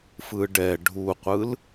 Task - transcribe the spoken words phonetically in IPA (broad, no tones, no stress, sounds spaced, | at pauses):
f ɯ ɖ ɛ ɖʱ u qʷ ɯ l